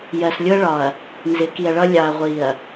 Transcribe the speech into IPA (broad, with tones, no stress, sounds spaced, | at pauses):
j ɜ˨ s lʲ ʊ˦ ɐ̯ ɭ ɒ˨ ɐ̯ | n z ɪ˨˦ k i˨ ɐ̯ ɭ ʌ˦ lʲ ɑ˨ ɐ̯ ʁʷ i˨ ɐ̯